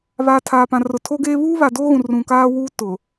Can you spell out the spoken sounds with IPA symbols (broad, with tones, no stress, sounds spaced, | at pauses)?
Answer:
β aː˨ tʰ aː˨ p ã˨ r ʊ˨ tʰ o˦ ɡ eː˦ β uː˦ β a˨ d oː˦ ɣ ũ˨ r ũ˨ k aː˦ w uː˦ t ʊ˨